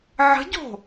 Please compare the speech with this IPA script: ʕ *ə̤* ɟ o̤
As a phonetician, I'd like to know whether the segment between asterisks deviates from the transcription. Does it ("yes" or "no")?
no